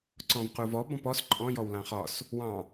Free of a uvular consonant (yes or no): no